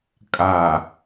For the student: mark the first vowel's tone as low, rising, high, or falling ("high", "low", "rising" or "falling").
low